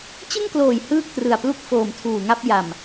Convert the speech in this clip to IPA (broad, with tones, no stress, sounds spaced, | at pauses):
t͡ɕ ɯ˥˩ ŋ k l oː˨˩ j h ɯː˥˩ k̚ t r ɯ˨˩ a̯ p l u˥˩ k̚ f oː˨˩ m tʰ uː˨˩ ŋ a˥˩ p̚ j a˨˩ m